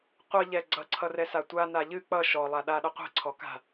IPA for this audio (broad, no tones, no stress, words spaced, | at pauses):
qʷʌʎɛ ɡ͡ǀʌǀʰʌrɛsa tʷana ʎɨ k͡pʌ ʃɔlˠaɗaɗʌ qʷɛ̤ǀʰɔka̤